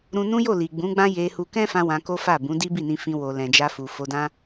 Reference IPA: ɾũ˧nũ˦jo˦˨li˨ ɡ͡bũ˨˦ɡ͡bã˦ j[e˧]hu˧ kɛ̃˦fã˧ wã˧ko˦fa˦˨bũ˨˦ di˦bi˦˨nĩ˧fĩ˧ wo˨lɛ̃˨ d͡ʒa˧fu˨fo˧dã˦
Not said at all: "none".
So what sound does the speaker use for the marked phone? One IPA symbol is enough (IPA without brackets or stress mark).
e˧